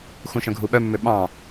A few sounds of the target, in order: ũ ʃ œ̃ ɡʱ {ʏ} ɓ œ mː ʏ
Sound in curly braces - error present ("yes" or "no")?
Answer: yes